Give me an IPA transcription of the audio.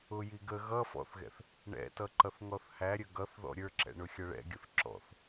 ʊ j i ɡ ə ɣ ʌ f ɔ̰ θ ɣ ɛ̰ θ | ɳ ɛ̰ t ʌ ǃ ʌ θ ŋ ɔ θ h æ ɾʲ ə ɡ ʌ θ ð ɔ̰ ɾʲ ə˞ ǁ ɛ̰ ɳ ʊ xʲ ʌ ɭ ɛ̰ ɡʲ ʊ θ ǁ ɔ̰ θ

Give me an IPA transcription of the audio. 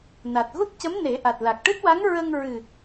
n a˨˩ t̚ ɣ u˦˥ t̚ c ə˧˥ m n e˨˩˦ ʔ a˨˩ t̚ l a˨˩ k̚ ʈ ɨ˦˥ t̚ w a˧˥ ŋ ɹ ə˧ ŋ ɹ ɨ˨˩

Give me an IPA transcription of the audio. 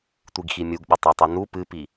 tʷ i ɡ x i mʲ u ɡ ɓ ɐ tˤ o tˤ u n u p ɨ p i

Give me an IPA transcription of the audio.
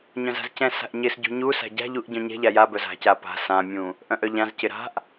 ɲ œ̃ z a̤ z c ɛ̃ s a̤ ʔ ɲ ɪ s ɟ ṳ ɲ u s a̤ ɟ a̤ ʎ u ʔ ɟ œ̃ ɲ ɛ̤ ʎ a j a b œ z a̤ c a p a̤ s ã mʲ ũ | ʔ œ̃ ʔ œ ʎ ã z c ɪ ɾ a̤ ʔ

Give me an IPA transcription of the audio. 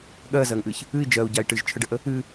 ɠ ɜ z ɜ ŋ ʔ ɨ ç | ɨ i̯ d͡ʒ ɜ u̯ ɟ a i̯ ʈ ɨ ʒ t͡ʃʰ ə ɖ ə ʔ ə | ɨ

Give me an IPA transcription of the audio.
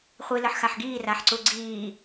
χʷ i l ə ħ x a ħ ɡ iː r a ħ ǀ u ɡ͡ǀ iː

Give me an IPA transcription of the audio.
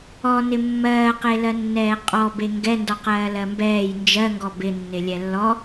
ɔ n ɪ mː ɜː q e l ɜ nː ɛː qʼ ɔ b e ŋ ɡ ɛ n d ɔ q ɜː l ɜ m b ɛː j n d͡ʒ ɜ ŋ ɡ ɔ b ɪ nː ɪ lʲ ɛ lː ɔ

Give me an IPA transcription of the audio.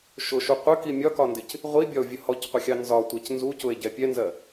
ʃ ʊ ʃ u qʷ ə k i mʲ ɒ k ɒ n d ɪ c | ʁʷ i bʲ ɒ o̯ vʲ ə h ɔ c qʷ ʌ xʲ ɑ n z ɒ tʷ ɛ c n z u c ʊ e̯ ɟ ɛ pʲ ɛ n z ɜ

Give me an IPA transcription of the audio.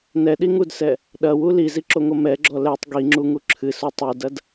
n ɛ ɗ i ŋ u d s ɛ | ɗ ɐ w u l i z i ǁ o ŋ o m ɛ ɡ͡ǁ ɔ l ɛ tˤ ɡ i ŋ͡ǁ u ŋ u ǁʰ ɨ s o tˤ u d ɐ d

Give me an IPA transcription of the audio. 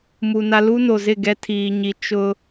m u˨ n a˦ l u˦ n o˨ z ɪ˦˨ ɡ ɛ˦ tʰ iː˨ ɲ i˨ t͡ʃ ʊ˦

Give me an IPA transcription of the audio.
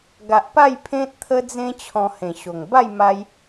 ɡ a˨ ʔ p a˥˧ j pʰ ẽ˦ t̚ t̪ʰ ə˦ d͡z ẽ˦ t͡ɕʰ ɔ̃˧ h ẽ˨˩ ɕ o˨˩ ŋ b a˥˧ j m a˧ j

